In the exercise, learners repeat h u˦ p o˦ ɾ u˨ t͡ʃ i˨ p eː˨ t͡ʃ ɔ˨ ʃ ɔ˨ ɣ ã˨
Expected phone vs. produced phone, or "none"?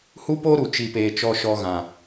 none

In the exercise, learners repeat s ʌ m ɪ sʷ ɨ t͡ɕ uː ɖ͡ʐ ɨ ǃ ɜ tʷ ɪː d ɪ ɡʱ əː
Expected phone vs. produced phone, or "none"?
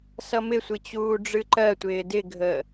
none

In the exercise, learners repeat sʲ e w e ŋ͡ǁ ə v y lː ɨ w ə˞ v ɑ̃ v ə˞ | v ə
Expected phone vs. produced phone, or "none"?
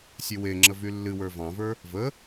none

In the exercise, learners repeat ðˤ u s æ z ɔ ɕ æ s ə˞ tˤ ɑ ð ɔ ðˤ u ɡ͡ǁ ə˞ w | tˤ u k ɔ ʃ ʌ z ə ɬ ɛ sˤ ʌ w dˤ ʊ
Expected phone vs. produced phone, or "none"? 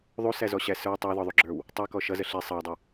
none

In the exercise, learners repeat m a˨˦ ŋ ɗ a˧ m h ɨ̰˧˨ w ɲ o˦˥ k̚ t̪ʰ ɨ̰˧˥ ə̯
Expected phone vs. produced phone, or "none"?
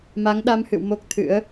ɲ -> m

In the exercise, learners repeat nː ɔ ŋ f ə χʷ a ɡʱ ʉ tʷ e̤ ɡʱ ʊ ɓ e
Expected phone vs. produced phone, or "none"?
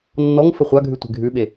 ʊ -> ʉ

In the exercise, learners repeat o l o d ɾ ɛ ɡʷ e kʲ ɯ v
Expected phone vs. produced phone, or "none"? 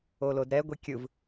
none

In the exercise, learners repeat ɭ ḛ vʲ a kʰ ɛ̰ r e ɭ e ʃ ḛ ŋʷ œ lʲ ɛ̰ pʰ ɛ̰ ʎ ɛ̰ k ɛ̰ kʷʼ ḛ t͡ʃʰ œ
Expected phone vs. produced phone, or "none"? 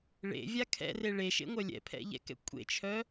none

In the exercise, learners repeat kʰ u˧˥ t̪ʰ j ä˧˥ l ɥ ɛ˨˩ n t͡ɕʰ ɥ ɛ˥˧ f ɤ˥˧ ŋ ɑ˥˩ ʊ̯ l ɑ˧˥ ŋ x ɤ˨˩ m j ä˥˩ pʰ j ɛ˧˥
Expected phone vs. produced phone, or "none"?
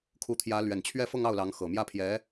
none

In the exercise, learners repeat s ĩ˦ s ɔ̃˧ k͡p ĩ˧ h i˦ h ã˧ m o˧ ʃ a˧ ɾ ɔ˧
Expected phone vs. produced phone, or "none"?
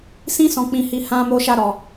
i˦ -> i˧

